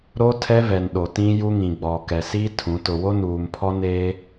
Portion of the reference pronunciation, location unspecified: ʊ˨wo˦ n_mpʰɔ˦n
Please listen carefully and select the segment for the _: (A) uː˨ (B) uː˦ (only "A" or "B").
A